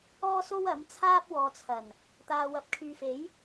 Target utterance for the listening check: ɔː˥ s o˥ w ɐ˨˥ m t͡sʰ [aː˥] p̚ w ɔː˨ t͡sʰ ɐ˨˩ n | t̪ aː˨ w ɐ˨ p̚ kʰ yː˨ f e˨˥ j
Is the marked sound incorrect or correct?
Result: correct